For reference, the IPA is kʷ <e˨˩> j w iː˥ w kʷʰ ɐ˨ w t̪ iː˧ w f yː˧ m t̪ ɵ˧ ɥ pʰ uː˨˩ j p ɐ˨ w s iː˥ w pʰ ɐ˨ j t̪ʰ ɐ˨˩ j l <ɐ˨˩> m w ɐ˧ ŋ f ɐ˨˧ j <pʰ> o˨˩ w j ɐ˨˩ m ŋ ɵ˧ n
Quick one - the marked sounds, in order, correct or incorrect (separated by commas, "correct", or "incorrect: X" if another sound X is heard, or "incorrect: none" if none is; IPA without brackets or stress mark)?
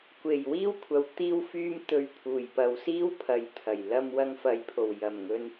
correct, incorrect: ɐ˧, correct